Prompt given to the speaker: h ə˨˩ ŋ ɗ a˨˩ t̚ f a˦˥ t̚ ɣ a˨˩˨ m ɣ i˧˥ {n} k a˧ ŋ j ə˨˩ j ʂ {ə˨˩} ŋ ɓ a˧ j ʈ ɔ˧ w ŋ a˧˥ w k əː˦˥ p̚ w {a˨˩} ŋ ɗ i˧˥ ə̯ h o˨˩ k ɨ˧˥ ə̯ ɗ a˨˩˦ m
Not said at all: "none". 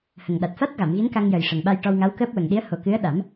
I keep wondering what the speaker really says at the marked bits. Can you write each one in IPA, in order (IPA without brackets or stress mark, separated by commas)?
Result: n, ə˨˩, ə˨˩